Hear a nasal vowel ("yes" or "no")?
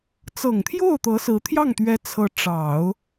no